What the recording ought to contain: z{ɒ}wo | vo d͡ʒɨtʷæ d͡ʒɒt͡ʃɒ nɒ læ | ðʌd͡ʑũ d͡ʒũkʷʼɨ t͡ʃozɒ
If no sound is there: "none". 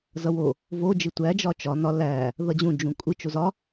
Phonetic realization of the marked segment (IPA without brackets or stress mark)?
ʌ